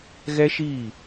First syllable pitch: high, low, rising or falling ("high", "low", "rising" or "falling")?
high